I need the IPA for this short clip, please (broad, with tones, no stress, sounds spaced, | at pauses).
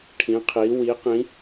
ʈʰ ĩ˩˧ qʰ i˩˧ w i˩˧ q ĩ˩˧